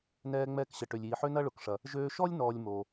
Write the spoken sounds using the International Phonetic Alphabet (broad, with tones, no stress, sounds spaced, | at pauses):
n ɛː˧ ŋ͡m ɛː˧ k ɕ ə˩ ʈ ø˩ lʲ iː˩ ħ ø˥ n ɐ˥ ɭ ʊ˩ k ʂ ɐ˩ | ʒ øː˧ ʃ ɔ˥ lʲ n ɔː˧ lʲ m o˩